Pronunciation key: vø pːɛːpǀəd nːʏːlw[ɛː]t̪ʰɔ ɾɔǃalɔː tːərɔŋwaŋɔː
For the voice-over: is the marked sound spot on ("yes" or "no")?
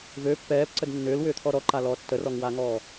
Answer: no